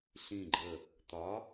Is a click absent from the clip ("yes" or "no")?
no